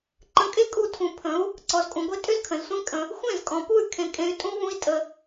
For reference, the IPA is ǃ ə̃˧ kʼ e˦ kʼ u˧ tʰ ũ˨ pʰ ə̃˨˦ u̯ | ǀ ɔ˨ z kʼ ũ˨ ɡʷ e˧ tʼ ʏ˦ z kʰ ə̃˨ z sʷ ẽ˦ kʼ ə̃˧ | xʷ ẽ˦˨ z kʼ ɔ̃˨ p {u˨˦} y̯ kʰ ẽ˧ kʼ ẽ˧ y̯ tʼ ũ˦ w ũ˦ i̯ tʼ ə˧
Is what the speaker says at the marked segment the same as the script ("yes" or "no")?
no